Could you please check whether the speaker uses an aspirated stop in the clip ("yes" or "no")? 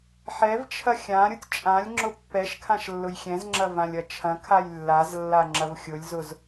yes